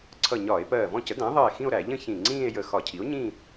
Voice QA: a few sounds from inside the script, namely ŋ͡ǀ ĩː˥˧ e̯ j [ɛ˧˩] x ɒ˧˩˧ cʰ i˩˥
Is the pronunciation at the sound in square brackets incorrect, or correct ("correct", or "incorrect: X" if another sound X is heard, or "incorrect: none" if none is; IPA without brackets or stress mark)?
incorrect: ə˧˩